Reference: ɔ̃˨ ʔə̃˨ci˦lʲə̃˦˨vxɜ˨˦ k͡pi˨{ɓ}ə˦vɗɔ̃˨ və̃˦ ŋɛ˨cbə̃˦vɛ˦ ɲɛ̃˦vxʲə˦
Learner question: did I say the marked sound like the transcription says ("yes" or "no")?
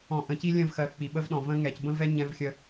yes